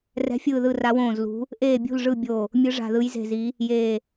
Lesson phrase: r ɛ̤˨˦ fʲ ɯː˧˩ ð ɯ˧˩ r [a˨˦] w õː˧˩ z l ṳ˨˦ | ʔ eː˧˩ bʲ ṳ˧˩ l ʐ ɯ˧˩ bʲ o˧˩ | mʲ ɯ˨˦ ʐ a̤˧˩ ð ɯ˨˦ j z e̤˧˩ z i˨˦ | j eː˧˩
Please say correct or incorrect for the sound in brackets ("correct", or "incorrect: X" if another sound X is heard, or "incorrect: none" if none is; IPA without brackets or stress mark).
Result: correct